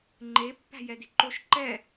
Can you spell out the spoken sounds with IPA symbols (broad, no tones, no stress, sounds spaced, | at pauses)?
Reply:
ŋ͡ǃ e pː æ̤ j ɛ d i ǃ o ʃ ǃ ɛ